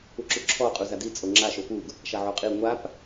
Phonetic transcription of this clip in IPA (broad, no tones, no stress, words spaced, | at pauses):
uǁuǁʰɔ qʼuzadi t͡sʼoŋ͡ǁa ʃopuɡ | ʃaʕoqʼi ŋʷap